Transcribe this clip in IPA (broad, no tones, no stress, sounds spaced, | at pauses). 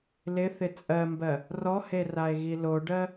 l ɪ θ ɪ t͡sʼ ɜ m b ɜ | r ɔ h e r a e̯ ɣ i l o ɖ ɜ